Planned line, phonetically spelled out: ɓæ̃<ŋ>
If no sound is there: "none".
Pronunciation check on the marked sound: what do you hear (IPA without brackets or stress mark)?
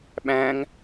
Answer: ŋ